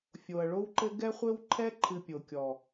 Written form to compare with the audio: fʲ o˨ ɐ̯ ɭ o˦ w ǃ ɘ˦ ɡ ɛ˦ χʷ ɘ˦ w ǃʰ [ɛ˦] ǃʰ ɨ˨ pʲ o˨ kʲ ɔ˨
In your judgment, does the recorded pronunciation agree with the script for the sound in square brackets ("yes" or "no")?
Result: yes